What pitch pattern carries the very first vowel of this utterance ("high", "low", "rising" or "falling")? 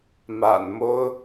low